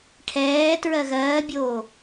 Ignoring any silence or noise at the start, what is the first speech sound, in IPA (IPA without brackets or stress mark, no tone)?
ʈʰ